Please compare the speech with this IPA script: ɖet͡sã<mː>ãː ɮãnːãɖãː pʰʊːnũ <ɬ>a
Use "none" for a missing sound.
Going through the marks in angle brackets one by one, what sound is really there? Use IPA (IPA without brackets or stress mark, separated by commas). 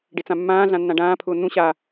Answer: mː, ɕ